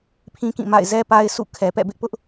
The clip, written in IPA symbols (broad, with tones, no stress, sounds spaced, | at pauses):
pʰ ĩ˦ k ĩ˦˨ m a̰˦˨ ɪ̯ z ɛ˦ p a˦ ɪ̯ sʰ ṵ˦˨ kʰ ɛ˨ p ɛ̰˦˨ b ɪ˦ ʔ p ʊ˦ ʔ